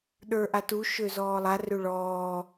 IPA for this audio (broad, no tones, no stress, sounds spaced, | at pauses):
ɗ ə˞ ʔ a t u ʃ ø z ɔː lˠ a r ø ɭ ɔː